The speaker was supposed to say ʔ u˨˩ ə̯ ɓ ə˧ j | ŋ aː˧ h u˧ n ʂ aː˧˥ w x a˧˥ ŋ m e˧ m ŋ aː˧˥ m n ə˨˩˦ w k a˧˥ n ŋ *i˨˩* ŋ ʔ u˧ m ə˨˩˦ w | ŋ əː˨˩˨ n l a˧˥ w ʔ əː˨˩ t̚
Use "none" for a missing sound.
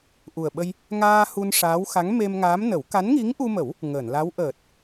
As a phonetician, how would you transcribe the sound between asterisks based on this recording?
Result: i˧˥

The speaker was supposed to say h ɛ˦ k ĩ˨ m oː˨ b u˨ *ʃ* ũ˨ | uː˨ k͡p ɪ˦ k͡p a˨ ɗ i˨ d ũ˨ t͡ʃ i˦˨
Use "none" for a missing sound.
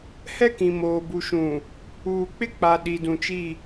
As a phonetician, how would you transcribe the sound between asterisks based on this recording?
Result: ʃ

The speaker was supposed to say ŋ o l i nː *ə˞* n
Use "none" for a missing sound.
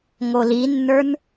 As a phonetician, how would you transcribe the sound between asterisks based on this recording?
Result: ə˞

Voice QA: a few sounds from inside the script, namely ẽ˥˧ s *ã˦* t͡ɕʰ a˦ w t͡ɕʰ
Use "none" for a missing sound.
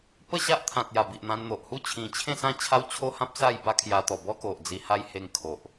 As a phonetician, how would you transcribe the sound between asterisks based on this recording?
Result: ã˥˧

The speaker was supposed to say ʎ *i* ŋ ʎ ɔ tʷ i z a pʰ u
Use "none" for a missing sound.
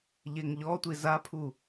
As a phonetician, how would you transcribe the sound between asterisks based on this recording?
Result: e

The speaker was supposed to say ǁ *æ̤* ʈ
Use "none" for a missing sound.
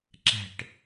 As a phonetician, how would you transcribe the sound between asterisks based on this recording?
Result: æ̤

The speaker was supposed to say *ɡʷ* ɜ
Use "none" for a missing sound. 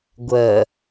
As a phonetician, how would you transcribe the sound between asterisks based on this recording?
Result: ɡʷ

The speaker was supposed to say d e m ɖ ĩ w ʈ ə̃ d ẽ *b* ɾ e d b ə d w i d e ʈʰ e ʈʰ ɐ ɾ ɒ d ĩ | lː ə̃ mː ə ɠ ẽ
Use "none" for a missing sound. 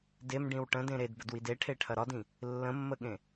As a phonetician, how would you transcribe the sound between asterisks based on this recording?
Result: none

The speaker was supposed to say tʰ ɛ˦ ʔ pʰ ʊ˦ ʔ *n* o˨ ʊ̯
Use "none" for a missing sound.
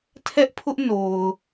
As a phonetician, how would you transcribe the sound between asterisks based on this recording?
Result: n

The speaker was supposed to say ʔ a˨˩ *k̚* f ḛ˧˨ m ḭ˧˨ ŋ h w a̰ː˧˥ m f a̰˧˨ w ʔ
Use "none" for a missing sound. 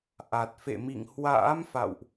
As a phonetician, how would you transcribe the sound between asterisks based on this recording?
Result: t̚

